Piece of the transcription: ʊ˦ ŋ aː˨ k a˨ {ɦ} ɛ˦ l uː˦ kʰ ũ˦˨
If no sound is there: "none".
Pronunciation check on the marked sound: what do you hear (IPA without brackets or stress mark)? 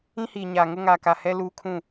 h